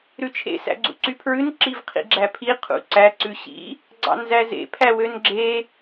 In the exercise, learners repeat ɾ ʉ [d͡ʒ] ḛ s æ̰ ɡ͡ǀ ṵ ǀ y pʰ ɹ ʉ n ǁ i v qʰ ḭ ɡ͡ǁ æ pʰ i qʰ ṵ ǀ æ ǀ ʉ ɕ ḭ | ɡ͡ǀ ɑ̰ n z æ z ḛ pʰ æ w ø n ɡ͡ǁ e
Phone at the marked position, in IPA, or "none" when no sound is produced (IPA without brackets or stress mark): t͡ʃʰ